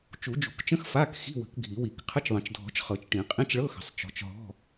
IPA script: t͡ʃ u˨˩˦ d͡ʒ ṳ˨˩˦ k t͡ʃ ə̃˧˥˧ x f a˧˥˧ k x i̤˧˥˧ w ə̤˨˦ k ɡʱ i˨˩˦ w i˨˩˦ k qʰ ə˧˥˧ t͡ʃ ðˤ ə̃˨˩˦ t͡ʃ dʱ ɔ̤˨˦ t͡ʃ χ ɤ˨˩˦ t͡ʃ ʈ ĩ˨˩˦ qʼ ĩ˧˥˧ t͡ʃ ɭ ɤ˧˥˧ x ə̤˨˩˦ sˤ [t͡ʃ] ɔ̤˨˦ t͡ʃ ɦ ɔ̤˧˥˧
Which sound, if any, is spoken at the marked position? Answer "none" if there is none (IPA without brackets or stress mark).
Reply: t͡ʃ